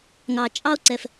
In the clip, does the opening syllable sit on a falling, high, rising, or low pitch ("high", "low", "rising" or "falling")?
low